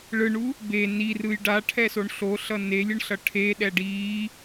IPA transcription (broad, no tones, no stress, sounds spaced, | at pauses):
ɭ ɯ ɳ u | b e n i r ɯ j ɖ a ʈʰ ɛ s o ɳ ɬ o ɬ ʌ n e lʲ ɯ ɳ ɬ ʌ ʈʰ e ɗ ɛ ɖ i